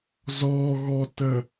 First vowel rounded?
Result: yes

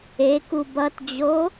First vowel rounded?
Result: no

